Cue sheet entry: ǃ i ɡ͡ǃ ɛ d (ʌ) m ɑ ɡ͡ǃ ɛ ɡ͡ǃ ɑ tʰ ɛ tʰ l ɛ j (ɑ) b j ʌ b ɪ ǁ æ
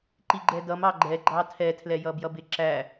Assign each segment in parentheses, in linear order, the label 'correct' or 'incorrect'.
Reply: correct, incorrect

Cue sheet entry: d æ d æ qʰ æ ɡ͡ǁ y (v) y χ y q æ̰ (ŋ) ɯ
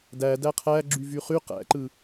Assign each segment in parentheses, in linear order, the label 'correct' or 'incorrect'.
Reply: correct, incorrect

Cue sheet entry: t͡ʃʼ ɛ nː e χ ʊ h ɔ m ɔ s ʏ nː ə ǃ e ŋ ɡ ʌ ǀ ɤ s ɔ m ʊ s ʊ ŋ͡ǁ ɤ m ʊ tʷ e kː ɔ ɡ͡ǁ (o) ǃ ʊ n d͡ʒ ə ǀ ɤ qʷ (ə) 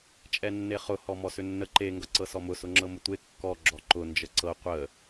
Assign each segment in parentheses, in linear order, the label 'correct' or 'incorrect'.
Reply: incorrect, correct

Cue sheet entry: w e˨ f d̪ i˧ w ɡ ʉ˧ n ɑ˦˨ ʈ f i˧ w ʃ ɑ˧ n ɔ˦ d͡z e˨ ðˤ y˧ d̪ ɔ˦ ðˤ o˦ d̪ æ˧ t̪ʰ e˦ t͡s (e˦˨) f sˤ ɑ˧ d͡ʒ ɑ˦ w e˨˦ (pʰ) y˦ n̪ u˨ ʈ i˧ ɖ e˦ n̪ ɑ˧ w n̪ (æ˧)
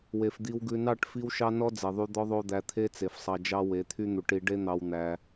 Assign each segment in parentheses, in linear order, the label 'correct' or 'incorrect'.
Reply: incorrect, incorrect, correct

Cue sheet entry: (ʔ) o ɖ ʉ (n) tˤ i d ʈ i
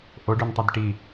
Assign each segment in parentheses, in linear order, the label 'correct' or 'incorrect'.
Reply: correct, correct

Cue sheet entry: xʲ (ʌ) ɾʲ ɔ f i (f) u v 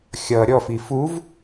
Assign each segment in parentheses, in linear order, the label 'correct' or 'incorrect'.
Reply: correct, correct

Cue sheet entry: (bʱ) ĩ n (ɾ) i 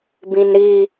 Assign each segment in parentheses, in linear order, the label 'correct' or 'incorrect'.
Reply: incorrect, correct

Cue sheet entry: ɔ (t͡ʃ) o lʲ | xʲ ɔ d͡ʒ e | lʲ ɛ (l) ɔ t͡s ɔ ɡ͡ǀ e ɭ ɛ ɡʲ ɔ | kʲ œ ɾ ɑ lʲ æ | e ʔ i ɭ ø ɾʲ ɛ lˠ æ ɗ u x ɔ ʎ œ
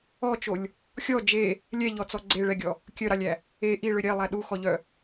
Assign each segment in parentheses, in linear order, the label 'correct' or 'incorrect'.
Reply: correct, incorrect

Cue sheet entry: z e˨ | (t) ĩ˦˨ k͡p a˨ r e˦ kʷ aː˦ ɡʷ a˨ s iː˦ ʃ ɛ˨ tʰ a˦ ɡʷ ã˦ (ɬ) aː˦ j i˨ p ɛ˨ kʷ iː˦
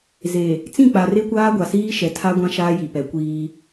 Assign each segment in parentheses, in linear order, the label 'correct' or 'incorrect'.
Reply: incorrect, incorrect

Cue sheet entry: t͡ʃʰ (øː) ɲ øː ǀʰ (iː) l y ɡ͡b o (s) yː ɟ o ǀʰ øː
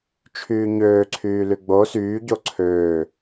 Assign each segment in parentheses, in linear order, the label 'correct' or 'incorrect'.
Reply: incorrect, incorrect, correct

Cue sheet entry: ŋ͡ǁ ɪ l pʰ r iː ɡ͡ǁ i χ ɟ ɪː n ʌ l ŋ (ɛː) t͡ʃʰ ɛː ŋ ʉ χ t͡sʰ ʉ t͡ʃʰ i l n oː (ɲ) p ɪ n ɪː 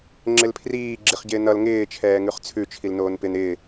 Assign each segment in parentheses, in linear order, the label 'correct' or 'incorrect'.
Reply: incorrect, incorrect

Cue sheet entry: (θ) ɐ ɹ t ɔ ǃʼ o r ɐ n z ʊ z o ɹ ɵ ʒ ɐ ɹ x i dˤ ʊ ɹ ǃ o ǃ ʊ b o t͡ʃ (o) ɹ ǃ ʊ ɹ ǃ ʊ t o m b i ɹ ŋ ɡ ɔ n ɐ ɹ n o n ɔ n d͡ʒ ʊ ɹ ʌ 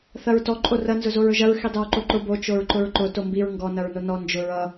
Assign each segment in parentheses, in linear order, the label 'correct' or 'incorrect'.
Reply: correct, correct

